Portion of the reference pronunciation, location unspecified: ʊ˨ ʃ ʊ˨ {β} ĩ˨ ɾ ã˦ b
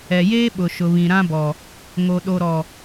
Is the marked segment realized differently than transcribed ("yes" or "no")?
no